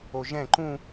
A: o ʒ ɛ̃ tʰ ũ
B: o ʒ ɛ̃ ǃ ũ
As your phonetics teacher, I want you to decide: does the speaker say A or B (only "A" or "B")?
B